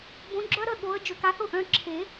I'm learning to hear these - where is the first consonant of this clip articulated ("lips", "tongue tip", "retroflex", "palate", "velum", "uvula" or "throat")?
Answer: lips